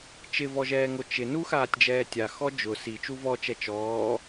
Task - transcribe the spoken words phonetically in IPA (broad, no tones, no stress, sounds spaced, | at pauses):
t͡ʃ ɪ v ɔ ʒ ɛː ŋ o t͡ʃ ɪ n u x aː tʲ d͡ʒ ɛː tʲ a x ɔ d͡ʒ ʊ s i t͡ʃ u v ɔ t͡ʃ ɛ t͡ʃ ɔː